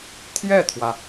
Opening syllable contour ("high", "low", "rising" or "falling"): falling